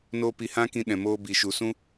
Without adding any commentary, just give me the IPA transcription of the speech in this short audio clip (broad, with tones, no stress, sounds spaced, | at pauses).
n oː˦ p i˧ h ã˦ k ĩ˧ ɗ ɛ̃˨ m oː˧ b i˨ ʃ u˨ s ũ˦